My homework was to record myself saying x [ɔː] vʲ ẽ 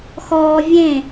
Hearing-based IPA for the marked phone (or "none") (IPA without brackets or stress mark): ɔː